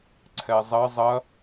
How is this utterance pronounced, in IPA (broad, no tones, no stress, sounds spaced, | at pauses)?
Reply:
ǀʰ ɛ zˤ ɐ zˤ ɐ